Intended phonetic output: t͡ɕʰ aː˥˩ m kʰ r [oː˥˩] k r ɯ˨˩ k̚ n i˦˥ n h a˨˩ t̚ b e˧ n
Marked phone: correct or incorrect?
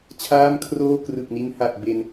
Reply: correct